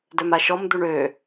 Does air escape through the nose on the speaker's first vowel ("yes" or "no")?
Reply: no